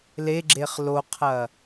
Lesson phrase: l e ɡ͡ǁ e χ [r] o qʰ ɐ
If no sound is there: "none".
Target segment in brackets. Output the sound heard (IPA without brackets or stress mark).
l